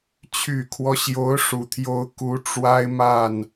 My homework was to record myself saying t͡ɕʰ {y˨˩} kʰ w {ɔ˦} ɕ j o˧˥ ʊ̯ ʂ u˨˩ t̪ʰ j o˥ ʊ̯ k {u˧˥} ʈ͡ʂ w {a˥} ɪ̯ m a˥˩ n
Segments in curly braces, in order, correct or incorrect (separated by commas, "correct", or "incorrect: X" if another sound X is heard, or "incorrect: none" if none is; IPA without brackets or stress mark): correct, correct, correct, correct